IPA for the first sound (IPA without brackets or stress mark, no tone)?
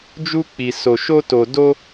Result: d͡ʒ